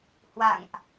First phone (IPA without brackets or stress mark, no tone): h